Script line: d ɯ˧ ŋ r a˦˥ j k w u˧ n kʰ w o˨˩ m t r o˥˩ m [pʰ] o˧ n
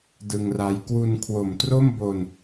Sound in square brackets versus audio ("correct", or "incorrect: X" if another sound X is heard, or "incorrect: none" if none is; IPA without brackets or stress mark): incorrect: b